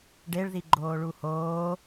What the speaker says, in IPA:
ɖ e ɭ ð i ɡ͡ǃ oː ɭ u h oː

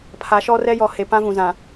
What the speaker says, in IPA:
pʰ a˨˦ ʃ ɔ˦ r ɛ˦ j ɔ˨ h e˨ p ã˦ v ũ˨ z ã˨

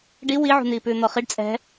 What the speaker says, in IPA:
ɖ i w i ʕ ṳ n̪ iː p ʉː n̪ ɔ χ i ɖ t͡sʼ ɛ̤

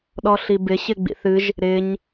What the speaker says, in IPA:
ɗ ɔ ɬ i b ɪ ɕ ɪ ɡ͡b ḭ θ ɨ ʒ | ɾ ɪ ɲ

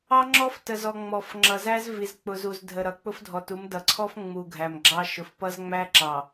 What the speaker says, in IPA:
ɑ˦ ŋ͡ǁ ɔ˦ f t ə˨ z ɔ˨ ŋ͡m ɔ˨ f ŋ͡ǁ ʌ˨ z æ˦ z v i˨ z k͡p ʊ˨ z u˨ z dʱ ə˨ ɾ ʌ˨ k͡p ʊ˦ f dʱ ɔ˨ t u˨˦ m d ʌ˨ ǀʰ ɔ˦ f ŋ͡m u˨ ɡʱ æ˨ m ɡ͡ǁ ɑ˦ ʃ ʊ˨ f p ʌ˦ z ŋ͡m æ˦ ǁ ɑ˨

